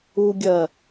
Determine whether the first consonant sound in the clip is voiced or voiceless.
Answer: voiced